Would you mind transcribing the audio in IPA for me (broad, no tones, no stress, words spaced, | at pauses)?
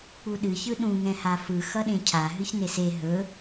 k͡puɗɨ çɯɗũ ŋɛ̃hafɯ xʌɗẽcʰa ɦɨçnese ɦɵ